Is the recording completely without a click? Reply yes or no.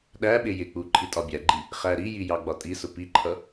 no